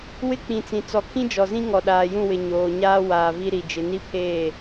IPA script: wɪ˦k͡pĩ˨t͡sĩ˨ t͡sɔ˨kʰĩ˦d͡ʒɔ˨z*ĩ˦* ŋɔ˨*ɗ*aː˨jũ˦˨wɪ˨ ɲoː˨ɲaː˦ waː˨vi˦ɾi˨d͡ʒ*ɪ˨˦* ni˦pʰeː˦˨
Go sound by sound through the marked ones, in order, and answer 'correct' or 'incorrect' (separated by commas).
correct, correct, correct